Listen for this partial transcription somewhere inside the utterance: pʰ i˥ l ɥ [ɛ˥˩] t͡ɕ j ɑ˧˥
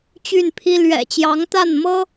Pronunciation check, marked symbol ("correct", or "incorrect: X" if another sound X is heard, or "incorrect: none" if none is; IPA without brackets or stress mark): incorrect: ɛ̰˨˩